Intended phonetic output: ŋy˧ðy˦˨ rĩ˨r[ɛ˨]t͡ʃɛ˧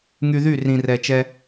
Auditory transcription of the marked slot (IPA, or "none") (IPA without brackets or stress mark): ɛ˨